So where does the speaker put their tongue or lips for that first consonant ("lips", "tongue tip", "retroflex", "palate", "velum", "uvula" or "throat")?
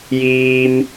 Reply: palate